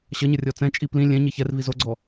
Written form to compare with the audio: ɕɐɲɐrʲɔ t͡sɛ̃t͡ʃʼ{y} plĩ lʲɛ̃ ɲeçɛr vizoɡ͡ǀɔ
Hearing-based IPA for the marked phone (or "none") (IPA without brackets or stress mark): i